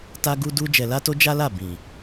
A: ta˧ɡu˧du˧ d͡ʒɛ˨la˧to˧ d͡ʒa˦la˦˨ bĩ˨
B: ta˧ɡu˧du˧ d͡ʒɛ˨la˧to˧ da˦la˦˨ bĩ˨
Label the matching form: A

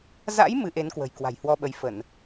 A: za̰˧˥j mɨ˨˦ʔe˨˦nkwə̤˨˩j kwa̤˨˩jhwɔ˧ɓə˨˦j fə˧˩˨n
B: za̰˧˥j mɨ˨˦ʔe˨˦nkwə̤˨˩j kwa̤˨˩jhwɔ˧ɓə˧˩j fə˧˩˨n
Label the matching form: A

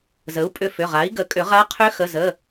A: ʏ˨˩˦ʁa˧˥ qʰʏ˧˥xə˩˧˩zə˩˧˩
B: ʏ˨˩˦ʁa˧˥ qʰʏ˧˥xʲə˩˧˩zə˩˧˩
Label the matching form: A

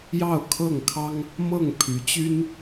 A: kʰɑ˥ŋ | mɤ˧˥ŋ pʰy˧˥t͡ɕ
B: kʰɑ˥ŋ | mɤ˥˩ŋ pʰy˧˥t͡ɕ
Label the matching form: B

